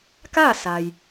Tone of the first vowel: falling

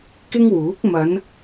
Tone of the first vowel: high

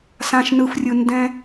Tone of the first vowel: low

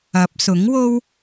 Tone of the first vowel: rising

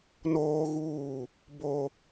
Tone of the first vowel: high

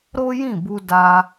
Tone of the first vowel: high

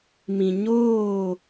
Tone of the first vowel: low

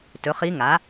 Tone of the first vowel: rising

